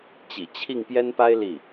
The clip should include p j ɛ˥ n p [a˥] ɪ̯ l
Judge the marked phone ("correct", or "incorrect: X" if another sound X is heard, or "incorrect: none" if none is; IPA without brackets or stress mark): correct